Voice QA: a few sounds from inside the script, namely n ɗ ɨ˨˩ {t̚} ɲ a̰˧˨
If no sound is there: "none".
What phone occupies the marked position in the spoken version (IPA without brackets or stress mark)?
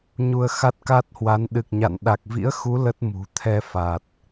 k̚